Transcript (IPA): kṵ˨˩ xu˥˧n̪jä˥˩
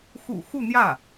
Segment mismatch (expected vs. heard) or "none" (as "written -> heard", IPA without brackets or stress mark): k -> x